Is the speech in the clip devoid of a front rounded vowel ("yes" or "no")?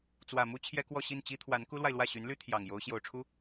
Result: no